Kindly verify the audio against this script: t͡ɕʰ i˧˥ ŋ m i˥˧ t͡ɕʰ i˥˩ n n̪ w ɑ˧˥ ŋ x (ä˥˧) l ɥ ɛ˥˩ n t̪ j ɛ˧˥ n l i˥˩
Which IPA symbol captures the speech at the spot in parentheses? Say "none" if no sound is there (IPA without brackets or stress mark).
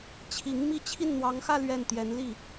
ä˥˧